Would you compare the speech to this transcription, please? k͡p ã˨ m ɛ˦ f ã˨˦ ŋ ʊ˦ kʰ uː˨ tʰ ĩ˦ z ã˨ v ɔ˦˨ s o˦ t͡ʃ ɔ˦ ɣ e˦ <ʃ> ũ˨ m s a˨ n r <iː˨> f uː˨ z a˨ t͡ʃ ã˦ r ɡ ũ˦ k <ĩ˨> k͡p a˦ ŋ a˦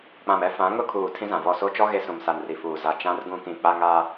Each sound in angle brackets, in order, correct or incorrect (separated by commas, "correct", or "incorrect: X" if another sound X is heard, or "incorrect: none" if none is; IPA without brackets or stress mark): incorrect: s, incorrect: i˨, correct